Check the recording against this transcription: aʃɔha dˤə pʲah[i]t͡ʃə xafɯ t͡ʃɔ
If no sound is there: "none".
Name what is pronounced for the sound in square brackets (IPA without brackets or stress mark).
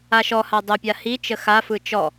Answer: i